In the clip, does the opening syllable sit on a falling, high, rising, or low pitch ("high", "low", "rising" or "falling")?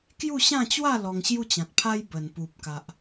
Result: falling